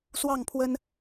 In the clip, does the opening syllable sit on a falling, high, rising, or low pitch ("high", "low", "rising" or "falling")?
falling